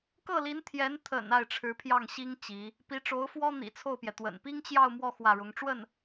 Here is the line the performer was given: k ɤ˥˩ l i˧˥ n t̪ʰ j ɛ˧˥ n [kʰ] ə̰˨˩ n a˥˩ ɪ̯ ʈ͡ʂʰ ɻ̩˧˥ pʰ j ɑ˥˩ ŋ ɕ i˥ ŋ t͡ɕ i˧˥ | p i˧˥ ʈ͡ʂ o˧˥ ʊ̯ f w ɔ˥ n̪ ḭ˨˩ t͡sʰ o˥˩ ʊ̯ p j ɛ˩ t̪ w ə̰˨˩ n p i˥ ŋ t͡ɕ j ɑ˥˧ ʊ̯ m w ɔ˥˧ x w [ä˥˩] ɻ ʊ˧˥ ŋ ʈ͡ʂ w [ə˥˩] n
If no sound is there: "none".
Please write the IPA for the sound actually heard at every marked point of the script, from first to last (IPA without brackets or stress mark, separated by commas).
t̪ʰ, ä˥˩, ə˥˩